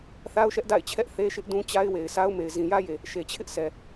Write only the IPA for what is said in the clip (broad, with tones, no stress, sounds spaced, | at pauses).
θ a˦ ʊ̯ ʃ ɛ˦ ʔ d a̰˦˨ ɪ̯ t͡ɕʰ ɛ˦ ʔ θ e˦ ʃ ɪ˦ ʔ d ũ˦ t͡ɕ a˦ ɪ̯ w e˨ ɪ̯ s a˦ ʊ̯ m e˨ ɪ̯ z ĩ˨ j ä˦ j e˨ | ʃ e˨ t͡ɕʰ ɪ˦ ʔ s ɛ˨